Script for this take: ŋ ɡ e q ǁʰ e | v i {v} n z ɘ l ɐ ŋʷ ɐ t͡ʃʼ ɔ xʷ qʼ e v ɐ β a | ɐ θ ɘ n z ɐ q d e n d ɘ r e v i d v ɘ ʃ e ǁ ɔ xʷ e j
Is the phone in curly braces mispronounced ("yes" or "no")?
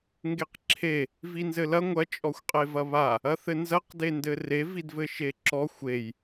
yes